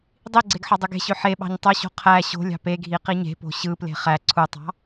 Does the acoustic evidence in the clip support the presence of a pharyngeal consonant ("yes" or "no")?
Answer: yes